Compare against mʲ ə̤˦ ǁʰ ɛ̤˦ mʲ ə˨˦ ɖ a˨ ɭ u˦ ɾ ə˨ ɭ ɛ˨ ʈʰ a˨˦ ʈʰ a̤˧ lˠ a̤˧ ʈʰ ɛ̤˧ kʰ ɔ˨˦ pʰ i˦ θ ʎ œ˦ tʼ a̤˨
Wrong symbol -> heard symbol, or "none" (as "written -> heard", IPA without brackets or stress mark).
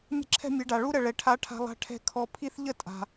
œ˦ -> ə˦